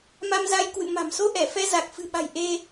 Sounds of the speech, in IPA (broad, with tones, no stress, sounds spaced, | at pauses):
m a˧ m z a˧ j k w ɨ̰˧˨ m a̤˨˩ m s o˧ ʔ ɛ˧˩ f ɛ˧ z a˨˩ k̚ f ɨ̤˨˩ ɓ a̤˨˩ j ʔ e˧